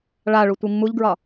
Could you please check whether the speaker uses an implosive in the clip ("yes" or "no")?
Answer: no